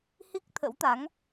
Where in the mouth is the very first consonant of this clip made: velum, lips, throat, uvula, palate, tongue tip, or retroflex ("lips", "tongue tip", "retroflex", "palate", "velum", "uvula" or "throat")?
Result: throat